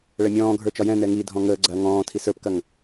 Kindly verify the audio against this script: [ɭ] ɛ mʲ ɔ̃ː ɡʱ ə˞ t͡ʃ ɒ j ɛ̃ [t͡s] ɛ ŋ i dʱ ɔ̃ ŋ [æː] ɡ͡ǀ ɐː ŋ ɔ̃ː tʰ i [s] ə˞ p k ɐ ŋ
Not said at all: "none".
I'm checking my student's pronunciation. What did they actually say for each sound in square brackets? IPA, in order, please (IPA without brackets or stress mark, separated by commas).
ɭ, n, əː, s